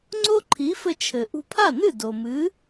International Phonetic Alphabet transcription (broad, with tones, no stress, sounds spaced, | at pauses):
ŋ͡ǀ o˥ ǃʰ i˩˥ f ɘ˧ t͡ʃʰ ɘ˩ ʔ ṳ˧ pʰ a˥˩ n ɨ˥˩ d o˩ m ɨ˩˥